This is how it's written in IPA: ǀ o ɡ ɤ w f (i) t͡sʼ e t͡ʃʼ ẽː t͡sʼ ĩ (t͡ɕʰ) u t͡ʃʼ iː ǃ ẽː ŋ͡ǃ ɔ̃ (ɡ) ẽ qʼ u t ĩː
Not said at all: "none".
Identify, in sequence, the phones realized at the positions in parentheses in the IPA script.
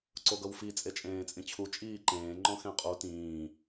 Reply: i, t͡ɕʰ, x

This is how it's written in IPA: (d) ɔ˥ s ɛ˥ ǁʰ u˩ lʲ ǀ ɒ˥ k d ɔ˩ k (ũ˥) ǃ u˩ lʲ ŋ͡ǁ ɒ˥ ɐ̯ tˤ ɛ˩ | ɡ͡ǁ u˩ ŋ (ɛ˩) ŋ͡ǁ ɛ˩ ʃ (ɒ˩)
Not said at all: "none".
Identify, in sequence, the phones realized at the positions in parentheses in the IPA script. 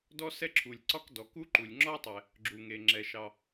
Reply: d, u˥, e˩, ɑ˩

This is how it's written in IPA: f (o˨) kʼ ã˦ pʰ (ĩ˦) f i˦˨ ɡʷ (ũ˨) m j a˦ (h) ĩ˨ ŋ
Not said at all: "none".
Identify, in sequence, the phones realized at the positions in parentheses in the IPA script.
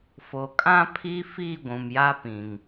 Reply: o˨, i˦, ũ˨, p

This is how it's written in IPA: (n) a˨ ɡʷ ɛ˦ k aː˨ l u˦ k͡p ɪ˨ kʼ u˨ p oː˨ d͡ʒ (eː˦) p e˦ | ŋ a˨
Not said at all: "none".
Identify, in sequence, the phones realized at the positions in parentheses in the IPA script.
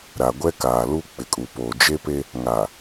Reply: ɾ, e˦

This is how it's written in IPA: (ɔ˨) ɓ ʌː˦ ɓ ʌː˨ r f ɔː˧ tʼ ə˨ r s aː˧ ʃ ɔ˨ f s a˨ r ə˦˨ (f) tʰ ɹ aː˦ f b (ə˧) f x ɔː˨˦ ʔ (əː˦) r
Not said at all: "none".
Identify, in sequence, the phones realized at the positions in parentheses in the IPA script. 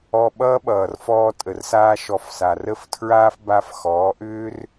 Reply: ɔ˧, f, a˧, ʏː˦

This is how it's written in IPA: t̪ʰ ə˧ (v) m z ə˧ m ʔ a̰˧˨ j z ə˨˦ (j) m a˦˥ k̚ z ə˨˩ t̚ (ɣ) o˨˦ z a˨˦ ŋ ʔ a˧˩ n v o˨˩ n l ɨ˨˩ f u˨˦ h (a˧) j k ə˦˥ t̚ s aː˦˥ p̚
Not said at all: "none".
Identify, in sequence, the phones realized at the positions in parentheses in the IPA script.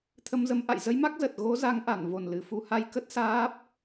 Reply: none, j, ɣ, a˧

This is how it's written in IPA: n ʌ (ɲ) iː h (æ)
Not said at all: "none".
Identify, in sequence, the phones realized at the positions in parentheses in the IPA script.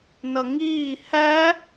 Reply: ŋ, æ

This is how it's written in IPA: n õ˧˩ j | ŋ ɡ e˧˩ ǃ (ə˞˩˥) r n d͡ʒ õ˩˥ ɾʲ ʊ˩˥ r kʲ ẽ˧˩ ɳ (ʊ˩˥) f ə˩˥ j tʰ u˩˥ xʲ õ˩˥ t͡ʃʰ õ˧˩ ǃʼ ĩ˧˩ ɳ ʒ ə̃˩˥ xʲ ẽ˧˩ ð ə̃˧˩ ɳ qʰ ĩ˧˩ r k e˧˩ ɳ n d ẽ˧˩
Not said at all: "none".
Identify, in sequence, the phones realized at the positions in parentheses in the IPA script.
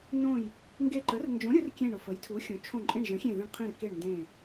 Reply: ə˩˥, ʊ˧˩

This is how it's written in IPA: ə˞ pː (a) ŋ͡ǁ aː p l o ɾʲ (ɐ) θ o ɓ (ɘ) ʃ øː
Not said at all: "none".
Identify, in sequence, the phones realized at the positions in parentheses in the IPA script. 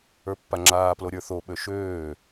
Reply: a, ə˞, ø

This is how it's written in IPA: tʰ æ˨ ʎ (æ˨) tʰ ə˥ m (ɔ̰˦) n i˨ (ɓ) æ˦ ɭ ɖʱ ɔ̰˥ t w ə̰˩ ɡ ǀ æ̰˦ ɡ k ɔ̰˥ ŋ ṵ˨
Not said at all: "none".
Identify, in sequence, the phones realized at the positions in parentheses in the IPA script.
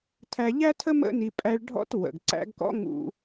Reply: æ˥, ə̰˦, pʼ

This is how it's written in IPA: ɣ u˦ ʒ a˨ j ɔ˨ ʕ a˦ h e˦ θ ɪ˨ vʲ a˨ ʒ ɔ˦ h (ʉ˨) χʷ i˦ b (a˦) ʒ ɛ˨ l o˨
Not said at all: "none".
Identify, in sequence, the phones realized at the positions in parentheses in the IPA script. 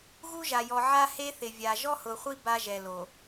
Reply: ʊ˨, a˦

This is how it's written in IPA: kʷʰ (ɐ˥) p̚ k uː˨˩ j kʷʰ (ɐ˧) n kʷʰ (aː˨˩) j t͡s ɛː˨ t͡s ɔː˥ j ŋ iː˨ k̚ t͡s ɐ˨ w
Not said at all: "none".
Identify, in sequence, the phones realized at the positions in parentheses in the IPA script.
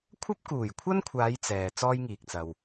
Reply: ɐ˥, ɐ˥, aː˨˧

